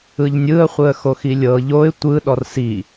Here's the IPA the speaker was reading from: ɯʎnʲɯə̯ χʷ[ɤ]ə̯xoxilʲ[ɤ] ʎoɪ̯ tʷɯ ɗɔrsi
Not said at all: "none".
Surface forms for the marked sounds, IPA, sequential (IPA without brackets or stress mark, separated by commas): ɯ, ɤ